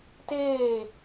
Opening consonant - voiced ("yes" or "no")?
no